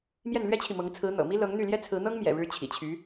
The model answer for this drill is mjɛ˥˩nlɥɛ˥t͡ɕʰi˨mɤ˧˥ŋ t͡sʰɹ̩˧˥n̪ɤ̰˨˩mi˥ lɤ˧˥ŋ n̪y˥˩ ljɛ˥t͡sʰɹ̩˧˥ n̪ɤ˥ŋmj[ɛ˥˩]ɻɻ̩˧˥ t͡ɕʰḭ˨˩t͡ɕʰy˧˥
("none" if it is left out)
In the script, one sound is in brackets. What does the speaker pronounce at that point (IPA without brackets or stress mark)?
ɛ̰˨˩